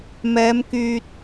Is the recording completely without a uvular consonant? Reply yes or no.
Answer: yes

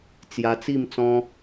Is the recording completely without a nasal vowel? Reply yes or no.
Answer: no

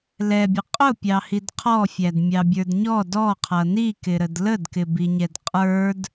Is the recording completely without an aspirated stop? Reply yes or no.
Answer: no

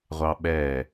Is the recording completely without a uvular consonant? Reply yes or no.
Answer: no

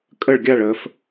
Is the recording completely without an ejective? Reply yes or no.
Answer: no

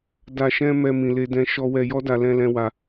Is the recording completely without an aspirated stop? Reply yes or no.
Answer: yes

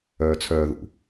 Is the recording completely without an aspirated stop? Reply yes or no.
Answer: no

